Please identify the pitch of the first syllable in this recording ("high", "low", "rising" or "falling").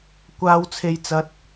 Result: high